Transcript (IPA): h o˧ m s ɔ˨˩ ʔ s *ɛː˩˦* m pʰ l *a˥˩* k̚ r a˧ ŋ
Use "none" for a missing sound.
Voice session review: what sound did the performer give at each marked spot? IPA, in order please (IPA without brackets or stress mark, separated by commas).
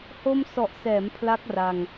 ɛː˩˦, a˦˥